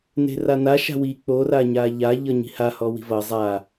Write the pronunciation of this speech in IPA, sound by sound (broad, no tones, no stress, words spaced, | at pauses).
ne̤rana ʃa̤wi k͡po raɲaʎa ʎʌɲi̤ha hɔwi̤vʌ zˤa